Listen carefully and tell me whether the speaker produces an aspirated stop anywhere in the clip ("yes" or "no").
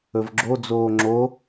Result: no